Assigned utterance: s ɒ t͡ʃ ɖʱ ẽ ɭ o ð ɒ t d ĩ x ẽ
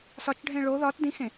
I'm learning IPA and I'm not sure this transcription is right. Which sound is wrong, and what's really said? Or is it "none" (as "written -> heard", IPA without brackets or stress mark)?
none